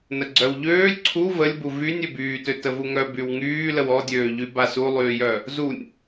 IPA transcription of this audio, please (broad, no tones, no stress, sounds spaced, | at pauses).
n ə ɡ͡ǀ œ w ʎ øː lʲ ǀʰ u v ə lʲ b u v y nʲ ø b yː t ø t ə v u ŋ œ b y w ŋ yː l ə w ɔ dʲ øː ʎ y b a s u lˠ yː j œ | z u nʲ